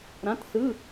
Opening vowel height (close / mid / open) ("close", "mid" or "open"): open